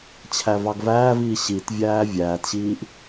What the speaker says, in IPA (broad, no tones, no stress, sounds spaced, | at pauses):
t͡ɕʰ æ v ɑ ɡ v æː v iː ɕ i t vʲ æː vʲ æː t ɕ iː ʔ